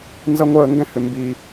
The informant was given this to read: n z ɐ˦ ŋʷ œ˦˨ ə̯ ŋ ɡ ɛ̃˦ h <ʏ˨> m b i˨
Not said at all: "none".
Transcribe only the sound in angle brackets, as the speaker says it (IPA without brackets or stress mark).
ʏ˨